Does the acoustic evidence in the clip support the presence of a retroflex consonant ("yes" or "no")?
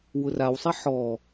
no